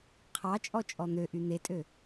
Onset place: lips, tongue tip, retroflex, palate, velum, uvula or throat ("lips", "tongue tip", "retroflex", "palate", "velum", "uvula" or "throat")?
uvula